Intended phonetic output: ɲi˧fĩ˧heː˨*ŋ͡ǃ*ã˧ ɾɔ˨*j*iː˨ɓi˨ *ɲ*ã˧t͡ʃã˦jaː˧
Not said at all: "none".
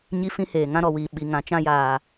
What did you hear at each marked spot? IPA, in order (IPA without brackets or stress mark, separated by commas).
ŋ, w, ŋ